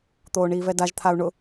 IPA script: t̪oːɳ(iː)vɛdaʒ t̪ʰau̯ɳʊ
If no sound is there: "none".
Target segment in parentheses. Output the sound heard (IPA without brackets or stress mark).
iː